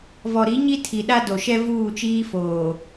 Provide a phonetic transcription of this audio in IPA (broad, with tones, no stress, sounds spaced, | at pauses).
v ɔ˨ ɾ i˨˦ ɲ i˦ tʰ i˨ ɗ a˦ d o˨ ʃ ɛ˦ v uː˦˨ t͡ʃ iː˦ f oː˨